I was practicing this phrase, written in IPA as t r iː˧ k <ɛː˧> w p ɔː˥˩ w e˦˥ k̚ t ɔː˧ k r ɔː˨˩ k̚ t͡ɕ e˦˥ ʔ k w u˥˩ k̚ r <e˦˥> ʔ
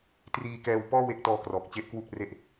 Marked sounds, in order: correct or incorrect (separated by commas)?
correct, incorrect